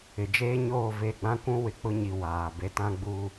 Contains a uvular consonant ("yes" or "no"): no